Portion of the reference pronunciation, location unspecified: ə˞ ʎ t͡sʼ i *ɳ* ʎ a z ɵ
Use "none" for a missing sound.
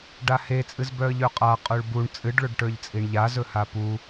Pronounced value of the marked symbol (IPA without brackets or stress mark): ɳ